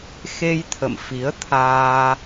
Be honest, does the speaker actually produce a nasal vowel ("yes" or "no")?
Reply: no